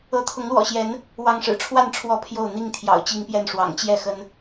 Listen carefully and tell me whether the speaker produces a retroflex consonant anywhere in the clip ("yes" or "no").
yes